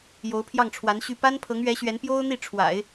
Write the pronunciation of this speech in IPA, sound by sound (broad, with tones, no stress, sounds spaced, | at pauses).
j o˧˥ ʊ̯ pʰ j ɑ˥˩ ŋ ʈ͡ʂʰ w a˧˥ n ɕ y˥˩ p a˥ n pʰ ɤ˧˥ ŋ ɥ ɛ˧˥ ɕ ɥ ɛ˧˥ n p j o˥ ʊ̯ n̪ i˥˩ ʈ͡ʂʰ w a̰˨˩˦ ɪ̯